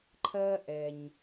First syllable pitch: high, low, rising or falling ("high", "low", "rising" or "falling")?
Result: high